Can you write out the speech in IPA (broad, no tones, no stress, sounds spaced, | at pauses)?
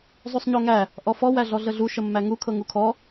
zˤ u sˤ ɲ o ŋ æ | ʔ ɔ f ɔ w æ ɮ ɔ ɮ ə ɮ u ʃ ə mː æ ŋ u kʰ ɤ ŋ u kʰ ɔ